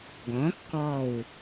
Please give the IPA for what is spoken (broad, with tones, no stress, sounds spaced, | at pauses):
ɡ ɔ̃˩˥ kː ɔ˥˩ w